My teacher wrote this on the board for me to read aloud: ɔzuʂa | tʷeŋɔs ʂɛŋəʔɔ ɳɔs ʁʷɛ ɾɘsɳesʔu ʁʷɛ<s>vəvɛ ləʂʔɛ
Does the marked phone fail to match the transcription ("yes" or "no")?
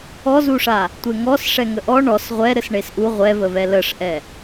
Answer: yes